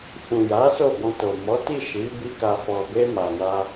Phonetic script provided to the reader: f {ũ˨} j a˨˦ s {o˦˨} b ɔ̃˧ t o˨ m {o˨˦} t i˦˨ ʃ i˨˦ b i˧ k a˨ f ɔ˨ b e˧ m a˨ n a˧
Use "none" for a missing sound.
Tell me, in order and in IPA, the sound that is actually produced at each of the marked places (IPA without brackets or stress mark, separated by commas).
ũ˨, o˦˨, ɔ˨˦